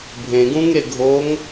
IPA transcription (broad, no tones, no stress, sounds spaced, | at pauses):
bʱ ẽ ɡ ũ ŋ e ɡʱ o ŋ